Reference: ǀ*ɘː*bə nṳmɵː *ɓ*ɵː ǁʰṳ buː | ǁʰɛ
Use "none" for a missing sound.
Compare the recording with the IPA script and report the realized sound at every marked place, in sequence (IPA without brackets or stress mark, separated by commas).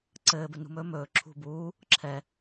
ɘː, m